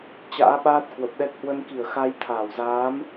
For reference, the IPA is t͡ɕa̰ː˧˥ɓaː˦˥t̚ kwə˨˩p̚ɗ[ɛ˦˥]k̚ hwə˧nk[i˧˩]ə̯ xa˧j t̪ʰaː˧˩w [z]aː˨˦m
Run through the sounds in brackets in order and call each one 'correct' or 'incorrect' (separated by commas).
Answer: correct, correct, correct